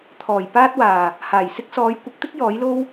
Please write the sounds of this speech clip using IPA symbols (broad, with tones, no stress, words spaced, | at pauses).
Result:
t̪ʰɔː˨˩jpaː˥t̚waː˨˩ | haː˨˩jsɪ˥k̚ sɔː˨˧j kʷɪ˨˥k̚t̪ɪ˥k̚ jɔː˨˥jlo˥w